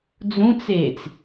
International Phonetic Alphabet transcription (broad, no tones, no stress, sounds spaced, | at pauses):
d͡z ũ t͡s eː t͡s